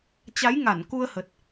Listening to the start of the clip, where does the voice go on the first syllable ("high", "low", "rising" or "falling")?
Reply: rising